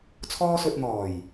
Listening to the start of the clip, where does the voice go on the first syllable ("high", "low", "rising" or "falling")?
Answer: high